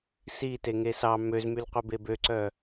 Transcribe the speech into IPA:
s i t e ŋ e s ɑ m ø z m y l qʷ ɛ b e b ø ǀ œ

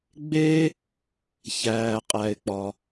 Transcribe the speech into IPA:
ɡ͡b e˥ | ç æː˩ qʼ æ˩ ɪ̯ k͡p ɒ˩

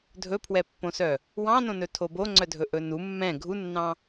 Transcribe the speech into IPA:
dʱ ɵ pʰ w ɛ pː õ s œ | w ɑ̃ n õ n ɵ tʰ o b o ŋ͡ǀ œ dʱ ɵ ʔ ɵ n u mː ɛ̃ ɡʱ u nː ɑ̃

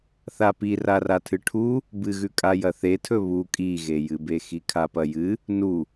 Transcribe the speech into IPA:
θ a p i r a r a tʰ ɨ ʈʰ u | b ɨ ɣ ʉ kʼ a j ɐ θ e tʰ ɵ β u kʼ i ɣ e j ɨ b e x i kʰ a p ɐ j ɨ | n u

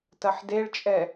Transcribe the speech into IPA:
t ɐ ħ d e ɭ t͡ʃʼ ɛ

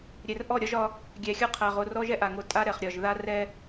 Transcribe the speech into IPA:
ɾʲ ɛ˨ r ʔ ɔ˦˨ ɾʲ ɒ˦ ʒ ɒ˦ | ɡʲ æ˨ xʲ ɒ˦ qʰ æ˨ ʁ o˨ r ɔ˦ ʒ ɛ˦ ʔ a˨ ŋ o˨ tʼ a˦ ɾ ɛ˨ χ ɾʲ ɒ˨ ʒ ð a˦ r ɛ˦

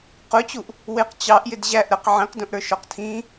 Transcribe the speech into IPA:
q ʊ t͡ɕ u ʔ | w ɪ q t͡ɕ ɑ ʔ j ɪ d ʑ æ ʔ ɾ ə q ʕ ĩ q d ũ ʔ ɾ ə˞ ʃ ɔ q tʰ ĩ

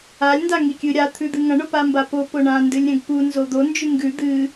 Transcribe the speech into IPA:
a lʲ n d a ŋ i kʲ ɨ ɾʲ a t̪ʰ ʉ d̪ ɨ ŋ ɐ̃ ɳ o p a m b a p o p o ɳ ã n d ɨ lʲ ɾʲ ɐ̃ ɡ p u n z o d̪ o n d͡ʒ ʉ ŋ ɡ ʉ d̪ ɨ

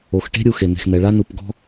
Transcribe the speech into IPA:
o˩ x ʈ e̤˥ ɾʲ u˩ x e˩ n̪ e̤˩ x n̪ ɛ˩ ɭ a˥ n u˩ p ɡ ɔ̤˥

